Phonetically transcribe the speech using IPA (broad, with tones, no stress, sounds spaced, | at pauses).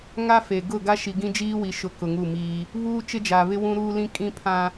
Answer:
ŋ a˦ f e˨ ɡ ʊ˦˨ ɡ a˦ ʃ i˨ ɡ ĩ˦ d͡ʒ iː˦ w i˨ ʃ ʊ˨ k ʊ˨ ŋ u˦˨ m iː˦ | β uː˦ t͡ʃ ɪ˦ d͡ʒ aː˨ β ɪ˦ w ũ˦ ɾ uː˦ l ĩ˦ kʼ ĩ˦ pʰ ã˦